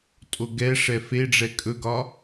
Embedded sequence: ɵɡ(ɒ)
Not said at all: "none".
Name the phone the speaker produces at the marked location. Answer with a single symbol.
ɒ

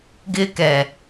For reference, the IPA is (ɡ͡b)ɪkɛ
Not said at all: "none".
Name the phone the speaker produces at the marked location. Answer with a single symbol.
ɡ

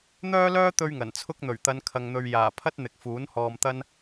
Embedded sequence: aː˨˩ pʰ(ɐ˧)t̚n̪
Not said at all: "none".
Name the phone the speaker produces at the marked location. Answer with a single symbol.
ɐ˥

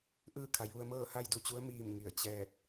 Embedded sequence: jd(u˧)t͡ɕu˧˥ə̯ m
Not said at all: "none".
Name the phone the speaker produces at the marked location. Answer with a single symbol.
u˧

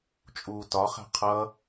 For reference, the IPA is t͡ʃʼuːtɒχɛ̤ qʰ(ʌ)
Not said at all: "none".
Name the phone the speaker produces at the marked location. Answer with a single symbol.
ʌ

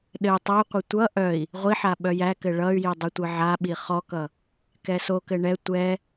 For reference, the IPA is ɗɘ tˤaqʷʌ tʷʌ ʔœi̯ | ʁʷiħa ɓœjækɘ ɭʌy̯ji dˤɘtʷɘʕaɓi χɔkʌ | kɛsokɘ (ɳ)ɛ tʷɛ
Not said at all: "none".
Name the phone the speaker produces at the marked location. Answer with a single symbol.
ɳ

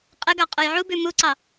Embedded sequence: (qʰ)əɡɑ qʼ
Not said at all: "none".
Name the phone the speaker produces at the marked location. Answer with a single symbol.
qʼ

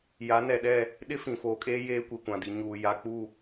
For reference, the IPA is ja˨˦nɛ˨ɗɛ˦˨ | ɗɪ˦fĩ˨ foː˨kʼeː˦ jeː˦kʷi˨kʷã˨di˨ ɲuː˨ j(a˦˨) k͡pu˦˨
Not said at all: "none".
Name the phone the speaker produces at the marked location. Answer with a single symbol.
a˨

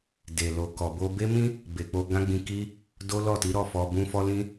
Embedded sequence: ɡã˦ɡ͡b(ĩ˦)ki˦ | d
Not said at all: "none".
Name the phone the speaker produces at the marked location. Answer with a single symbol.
ĩ˧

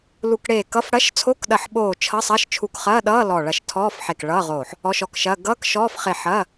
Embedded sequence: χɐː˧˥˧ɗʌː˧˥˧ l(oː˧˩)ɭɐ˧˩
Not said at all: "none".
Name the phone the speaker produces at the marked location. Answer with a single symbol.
ɔː˧˩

